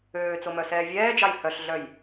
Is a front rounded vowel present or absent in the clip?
present